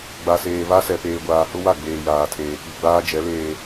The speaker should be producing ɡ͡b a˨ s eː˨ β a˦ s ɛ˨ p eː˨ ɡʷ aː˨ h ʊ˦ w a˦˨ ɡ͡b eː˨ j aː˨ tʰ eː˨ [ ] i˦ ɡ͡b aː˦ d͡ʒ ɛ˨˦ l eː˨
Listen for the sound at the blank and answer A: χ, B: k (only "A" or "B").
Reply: B